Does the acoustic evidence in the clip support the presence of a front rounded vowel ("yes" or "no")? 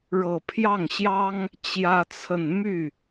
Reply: yes